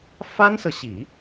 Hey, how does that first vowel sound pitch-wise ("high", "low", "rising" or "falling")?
high